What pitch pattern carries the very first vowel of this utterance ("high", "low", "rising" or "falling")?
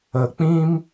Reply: low